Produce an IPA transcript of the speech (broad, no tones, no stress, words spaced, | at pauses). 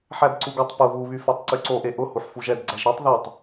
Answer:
ħædǀuɡotˤ pʊ βuβyfætˤ ǀyǀoʔe ʔʊ huħfuʒɛd ɡ͡ǀæʒɾɛtˤ ðɛtˤ